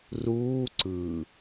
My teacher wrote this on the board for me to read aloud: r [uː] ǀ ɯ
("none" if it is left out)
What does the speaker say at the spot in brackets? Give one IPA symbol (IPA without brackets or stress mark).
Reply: uː